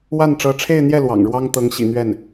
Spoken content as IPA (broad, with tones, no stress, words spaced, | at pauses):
wa˥˩nʈ͡ʂɤ˧˥ʈ͡ʂʰe˥˧ɪ̯n̪jɛ˥˩ lwɑ̰˨˩ŋɻwɑ˥ŋt̪ɤ˧˥ŋ ɕḭ˨˩n̪ɥɛ˥˩n